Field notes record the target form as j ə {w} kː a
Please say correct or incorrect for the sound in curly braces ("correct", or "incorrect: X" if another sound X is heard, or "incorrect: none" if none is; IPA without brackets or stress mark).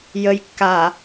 incorrect: j